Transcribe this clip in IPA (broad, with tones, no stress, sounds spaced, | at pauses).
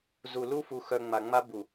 z u˨ l u˦ f u˨ x œ˨ ŋ͡m a˨ ŋ͡m a˦ b u˨